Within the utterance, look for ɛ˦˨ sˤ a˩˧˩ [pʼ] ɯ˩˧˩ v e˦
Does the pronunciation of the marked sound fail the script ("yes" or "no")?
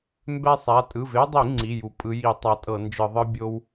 yes